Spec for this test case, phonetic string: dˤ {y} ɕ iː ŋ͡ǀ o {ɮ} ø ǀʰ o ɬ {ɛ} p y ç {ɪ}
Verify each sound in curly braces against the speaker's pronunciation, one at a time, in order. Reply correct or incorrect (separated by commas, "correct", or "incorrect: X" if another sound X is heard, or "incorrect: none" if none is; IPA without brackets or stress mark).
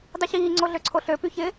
correct, correct, incorrect: ø, correct